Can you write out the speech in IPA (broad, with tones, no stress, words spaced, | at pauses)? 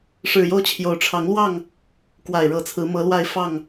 ʂɻ̩˨˩jo˦ʊ̯t͡ɕʰjo˨˦ʊ̯ ʈ͡ʂʰɑ˨˦ŋlwɑ˥˨ŋ | kwa˨˩ɪ̯ɻɤ˨˦t͡sʰɹ̩˨˦ mɤ˨˦lwa˥˨ɪ̯ fɑ˥˨ŋ